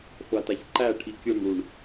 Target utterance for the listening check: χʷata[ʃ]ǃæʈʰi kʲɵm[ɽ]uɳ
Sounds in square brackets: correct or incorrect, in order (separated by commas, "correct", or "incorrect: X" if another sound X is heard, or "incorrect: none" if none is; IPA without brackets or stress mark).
incorrect: ç, correct